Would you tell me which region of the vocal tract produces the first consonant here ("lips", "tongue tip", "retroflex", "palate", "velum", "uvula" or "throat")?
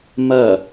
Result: lips